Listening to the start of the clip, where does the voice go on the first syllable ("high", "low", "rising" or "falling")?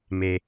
low